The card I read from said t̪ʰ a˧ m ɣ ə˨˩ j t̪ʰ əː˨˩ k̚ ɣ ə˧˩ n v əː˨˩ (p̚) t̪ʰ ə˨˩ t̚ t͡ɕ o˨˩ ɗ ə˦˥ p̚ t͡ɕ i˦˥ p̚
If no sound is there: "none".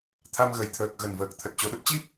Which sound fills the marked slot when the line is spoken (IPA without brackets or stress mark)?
k̚